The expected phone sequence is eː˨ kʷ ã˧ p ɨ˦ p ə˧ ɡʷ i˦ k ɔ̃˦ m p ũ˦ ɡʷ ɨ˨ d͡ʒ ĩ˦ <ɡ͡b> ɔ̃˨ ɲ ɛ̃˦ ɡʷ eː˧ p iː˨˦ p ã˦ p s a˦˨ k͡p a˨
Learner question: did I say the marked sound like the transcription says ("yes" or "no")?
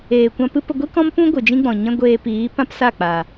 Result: yes